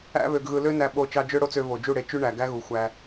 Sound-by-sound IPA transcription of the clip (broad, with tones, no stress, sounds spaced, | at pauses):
æ̰˦ β ø˧ ɡ ɣ ɯ˧ l ø˦ n æ˧ ɓ o˦˨ t͡ʃ ɑ˦ d͡ʒ ø˦ ɽ o˦ t͡s ø˧ v o˨ d͡ʒ u˦˨ ɽ e˧ t͡ʃ y˦ ɳ æ˨ ɡ æ˦ ɣ u˨ xʷ æ˧